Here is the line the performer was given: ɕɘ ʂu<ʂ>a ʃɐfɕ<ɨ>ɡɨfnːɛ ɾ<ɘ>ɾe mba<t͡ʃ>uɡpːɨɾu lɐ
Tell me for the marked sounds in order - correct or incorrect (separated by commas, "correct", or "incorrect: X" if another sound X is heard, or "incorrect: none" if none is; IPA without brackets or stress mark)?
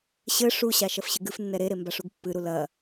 incorrect: ɕ, correct, incorrect: e, incorrect: ʂ